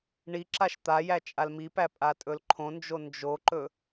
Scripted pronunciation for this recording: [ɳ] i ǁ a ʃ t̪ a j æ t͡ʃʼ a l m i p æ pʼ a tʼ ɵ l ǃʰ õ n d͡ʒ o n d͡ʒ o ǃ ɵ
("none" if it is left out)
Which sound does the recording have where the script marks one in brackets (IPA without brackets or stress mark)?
ɳ